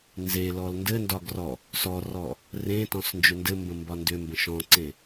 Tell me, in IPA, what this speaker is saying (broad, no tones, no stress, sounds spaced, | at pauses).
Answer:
n z e l ɔ l n d ɘ n d ɒ ɡ r ɔ | s ɔ r ɔ | r ẽ t ɔ̃ s n d͡ʒ ʏ n d ɘ m b ə̃ m b ɒ n d ʏ m b ə̃ ʃ ɔ̃ ǀ ẽ